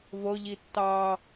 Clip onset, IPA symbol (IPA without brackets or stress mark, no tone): v